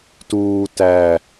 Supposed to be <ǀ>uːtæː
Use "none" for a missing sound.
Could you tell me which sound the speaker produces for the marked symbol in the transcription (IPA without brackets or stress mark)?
t